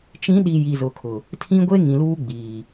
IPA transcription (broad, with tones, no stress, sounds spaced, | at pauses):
t͡ʃ ĩ˨˦ ɗ i˨ j i˨ z ʊ˨ kʰ ʊ˨ | tʰ ĩ˦ ɡʷ e˦ ŋ ĩ˨ l uː˦ ɡ͡b iː˨